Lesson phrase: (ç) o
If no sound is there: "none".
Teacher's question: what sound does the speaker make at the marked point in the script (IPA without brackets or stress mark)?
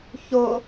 ç